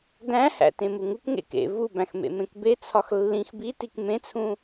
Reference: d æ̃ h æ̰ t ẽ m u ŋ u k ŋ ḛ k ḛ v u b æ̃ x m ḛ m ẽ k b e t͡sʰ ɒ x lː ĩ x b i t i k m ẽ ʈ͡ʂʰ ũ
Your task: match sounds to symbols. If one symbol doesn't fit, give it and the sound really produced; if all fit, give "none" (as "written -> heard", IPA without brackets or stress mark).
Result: ʈ͡ʂʰ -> t͡sʰ